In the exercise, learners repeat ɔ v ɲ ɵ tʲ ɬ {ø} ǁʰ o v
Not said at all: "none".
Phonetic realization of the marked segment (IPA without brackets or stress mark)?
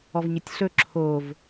ɵ